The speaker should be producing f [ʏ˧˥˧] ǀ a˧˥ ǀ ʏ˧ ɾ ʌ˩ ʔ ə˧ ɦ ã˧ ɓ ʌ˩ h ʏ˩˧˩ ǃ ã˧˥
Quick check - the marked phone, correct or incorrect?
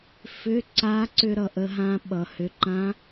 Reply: correct